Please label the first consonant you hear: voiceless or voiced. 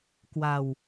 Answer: voiceless